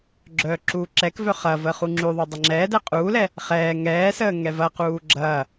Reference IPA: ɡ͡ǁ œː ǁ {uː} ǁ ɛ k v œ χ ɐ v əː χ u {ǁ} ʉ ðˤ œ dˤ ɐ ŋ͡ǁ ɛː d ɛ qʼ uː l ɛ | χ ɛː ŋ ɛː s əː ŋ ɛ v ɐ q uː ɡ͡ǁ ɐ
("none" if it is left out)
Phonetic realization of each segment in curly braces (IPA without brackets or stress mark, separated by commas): uː, ŋ͡ǁ